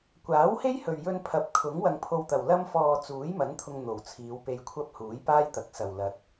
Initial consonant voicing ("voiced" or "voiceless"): voiceless